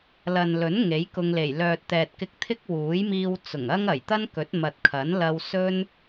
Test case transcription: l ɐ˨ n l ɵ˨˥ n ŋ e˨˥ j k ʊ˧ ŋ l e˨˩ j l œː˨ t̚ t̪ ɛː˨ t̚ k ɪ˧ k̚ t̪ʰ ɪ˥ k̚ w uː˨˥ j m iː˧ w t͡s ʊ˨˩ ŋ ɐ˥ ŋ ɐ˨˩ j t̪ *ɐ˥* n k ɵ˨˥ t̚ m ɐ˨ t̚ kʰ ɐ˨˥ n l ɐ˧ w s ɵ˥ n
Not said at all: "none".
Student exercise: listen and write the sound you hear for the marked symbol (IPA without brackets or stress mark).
ɐ˥